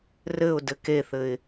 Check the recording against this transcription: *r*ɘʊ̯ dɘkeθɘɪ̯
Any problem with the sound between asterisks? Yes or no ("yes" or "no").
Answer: no